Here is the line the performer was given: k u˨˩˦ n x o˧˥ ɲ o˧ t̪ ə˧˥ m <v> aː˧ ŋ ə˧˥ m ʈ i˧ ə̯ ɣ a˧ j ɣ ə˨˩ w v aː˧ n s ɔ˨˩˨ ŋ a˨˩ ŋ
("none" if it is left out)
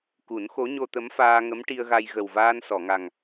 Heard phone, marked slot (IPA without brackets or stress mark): f